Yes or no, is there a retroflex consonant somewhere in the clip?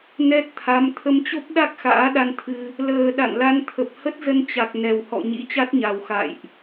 no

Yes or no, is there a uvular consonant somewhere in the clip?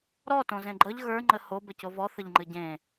no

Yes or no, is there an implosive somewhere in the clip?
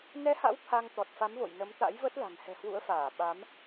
yes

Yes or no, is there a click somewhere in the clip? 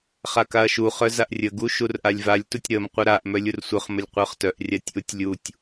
no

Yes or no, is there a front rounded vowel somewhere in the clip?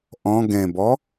no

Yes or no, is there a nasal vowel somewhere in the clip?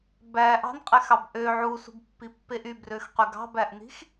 no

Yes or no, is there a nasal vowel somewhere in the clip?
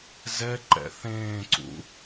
yes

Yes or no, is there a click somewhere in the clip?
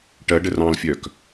no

